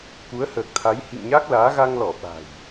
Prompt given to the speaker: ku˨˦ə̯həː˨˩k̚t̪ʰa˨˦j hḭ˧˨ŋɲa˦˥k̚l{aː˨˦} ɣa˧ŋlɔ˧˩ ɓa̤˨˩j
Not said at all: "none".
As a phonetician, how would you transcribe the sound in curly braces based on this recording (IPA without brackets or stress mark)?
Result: aː˨˦